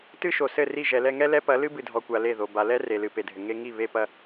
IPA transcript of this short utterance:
tɨ˦ʃo˨sɘ˦˨ri˦˨ ʒɛ˨lɛ˧ŋɛ˦ lɛ˦pɐ˨˦lɨ˦ bɨ˨dʱɔ˨kʷa˨ le˦˨ðo˨ ba˨lɛ˦ re˨lɨ˨ pe˨dʱɘ˨ ŋe˧ŋi˦˨ βe˧pɐ˧

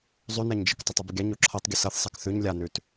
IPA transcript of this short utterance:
zˤʉnaɲd͡ʒɨk tˤətˤɨbəɡʲa ɲoǁʰɤtˤɡʲə sɤθsˤak θʉɲ lʲanʉt

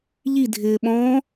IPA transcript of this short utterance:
ʎidʱɪːɓɔ̃ː

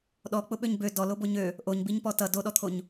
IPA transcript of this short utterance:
ɗɔk͡pʊɓøɲ bø dɔlobo ɲø | ʔoɲbiɲpɔ tʌ doɗɔt̪ʰoɲ

